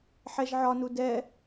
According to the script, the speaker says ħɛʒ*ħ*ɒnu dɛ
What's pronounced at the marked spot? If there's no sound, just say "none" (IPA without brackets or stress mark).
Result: ʕ